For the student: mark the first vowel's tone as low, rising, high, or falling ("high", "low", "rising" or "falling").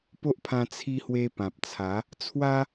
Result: high